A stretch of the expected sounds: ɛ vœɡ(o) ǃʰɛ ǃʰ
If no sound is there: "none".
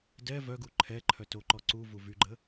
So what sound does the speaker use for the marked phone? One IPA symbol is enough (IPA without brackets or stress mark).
u